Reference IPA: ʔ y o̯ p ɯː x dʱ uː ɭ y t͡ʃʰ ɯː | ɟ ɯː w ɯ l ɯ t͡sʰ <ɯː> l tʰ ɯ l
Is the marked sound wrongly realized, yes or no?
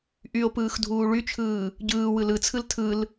yes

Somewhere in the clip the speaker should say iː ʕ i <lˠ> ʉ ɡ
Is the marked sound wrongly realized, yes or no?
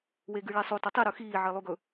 no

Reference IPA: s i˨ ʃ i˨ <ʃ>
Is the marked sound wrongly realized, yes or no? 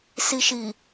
yes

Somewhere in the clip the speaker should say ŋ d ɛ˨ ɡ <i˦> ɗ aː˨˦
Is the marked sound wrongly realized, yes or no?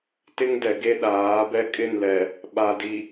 yes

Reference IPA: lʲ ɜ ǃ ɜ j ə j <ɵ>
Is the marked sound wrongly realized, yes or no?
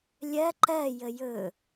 no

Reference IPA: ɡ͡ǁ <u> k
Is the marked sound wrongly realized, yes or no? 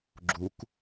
no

